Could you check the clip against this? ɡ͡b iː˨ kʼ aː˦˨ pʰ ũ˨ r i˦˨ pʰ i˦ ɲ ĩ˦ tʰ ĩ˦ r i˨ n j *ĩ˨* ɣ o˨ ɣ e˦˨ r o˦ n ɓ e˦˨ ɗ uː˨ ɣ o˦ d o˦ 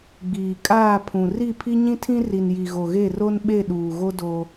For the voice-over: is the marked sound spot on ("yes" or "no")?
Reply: no